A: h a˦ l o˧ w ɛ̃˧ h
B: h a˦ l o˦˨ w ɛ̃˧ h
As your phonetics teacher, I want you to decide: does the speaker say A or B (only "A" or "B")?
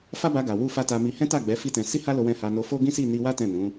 A